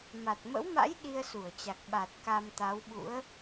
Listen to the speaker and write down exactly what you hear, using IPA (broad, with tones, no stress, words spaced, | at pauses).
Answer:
ma˨˩t̚mə̰˧˥wma̰˧˥j ɗi˧ə̯su˧˩ə̯t͡ɕa˨˩k̚ ɓa˨˩t̚ ka˧mt̪a˨˦wɓṵ˧˥ə̯